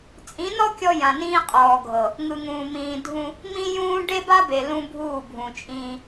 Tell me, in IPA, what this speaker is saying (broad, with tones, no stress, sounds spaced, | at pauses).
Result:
t͡sʼ ĩ˨˦ n ɔ˦ kʲ ɔ˦ j ã˨ n ĩː˦ qʼ ɔː˨ ɡʱ ɤ˨ | ŋ ɯ˨ ŋ ũː˨ m ĩː˨ dʱ ũ˦ | m ĩ˦ j ũː˦ ɖ e˦ b a˦ b e˨ l ũ˦ bʱ uː˦˨ bʱ ũ˨ t͡ʃʼ ĩː˦